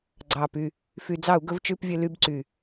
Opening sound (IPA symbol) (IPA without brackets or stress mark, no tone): ɡ͡ǀ